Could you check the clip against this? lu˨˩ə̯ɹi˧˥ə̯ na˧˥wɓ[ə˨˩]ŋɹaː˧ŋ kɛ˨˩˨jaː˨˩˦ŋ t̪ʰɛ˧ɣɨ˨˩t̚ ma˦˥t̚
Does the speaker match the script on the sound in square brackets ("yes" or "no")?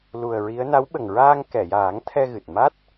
yes